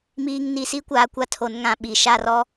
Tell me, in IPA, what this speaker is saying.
m iː˨ ŋ n i˨ s i˦ kʷ aː˨ kʷ a˦ tʰ o˨˦ n ŋ ã˨ ɓ i˨ ʃ a˦˨ r ɔ˦

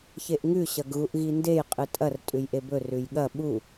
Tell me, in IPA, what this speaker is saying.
ç e ʔ ŋ ʉ ɕ ɐ ɡ ɣ u ʔ ɣ i n d e j qʼ ɨ tʼ ɐ r tʼ ʉ j ʔ e b ɵ r ʉ j ɠ ɐ ɓ u

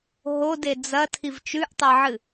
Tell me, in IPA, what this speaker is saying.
ɦ o d e d͡z ɐ tʰ i v t͡ʃ ʉ ʔ tˤ e ʕ ɨ

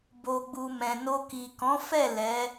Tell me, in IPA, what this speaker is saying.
b o˨ ɡ͡b u˨ m ɛ̃˨ n o˧ k i˨ k ɔ̃˨˦ f ɛ˦˨ l ɛ˨˦

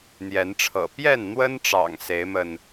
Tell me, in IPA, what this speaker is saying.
n̪ j ɛ˨˦ n ʈ͡ʂʰ ɤ̰˨˩ p j ɛ˥˨ n n̪ w ə˦ n ʈ͡ʂ ɑ̰˨˩ ŋ s e˨˦ ɪ̯ m ə˧ n

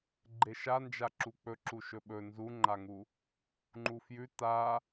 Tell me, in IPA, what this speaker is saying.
ɡ͡ǃ e ʃ a n d͡ʒ a ǁ u k͡p ɵ ǁ u ʃ ɵ ɓ ɵ n z u ŋ͡ǃ a ŋ u | ŋ͡ǃ u f j ʉ t a

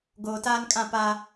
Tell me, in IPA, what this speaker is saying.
ɡ oː˨ t aː˦ n kʼ ã˦˨ p aː˦

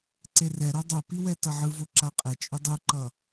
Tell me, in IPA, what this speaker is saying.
ǀ e r ɛ ɾ o dˤ o p i w ɛ t ʌ ʕ ɯ v o ǁ a qʼ ɛ t͡ʃʼ u dˤ u ǃ ʌ

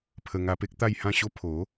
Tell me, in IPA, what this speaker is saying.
pʰ ə˧ ŋ a˧ p e˦ k̚ t̪ a˥˧ j h ã˥˧ ɕ o˦ pʰ o˨˦

